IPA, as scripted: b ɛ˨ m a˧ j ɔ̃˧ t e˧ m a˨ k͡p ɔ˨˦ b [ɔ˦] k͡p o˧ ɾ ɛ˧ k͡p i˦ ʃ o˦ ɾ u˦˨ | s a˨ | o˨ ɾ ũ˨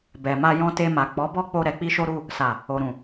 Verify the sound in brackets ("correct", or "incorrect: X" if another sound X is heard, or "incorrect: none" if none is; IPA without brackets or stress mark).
correct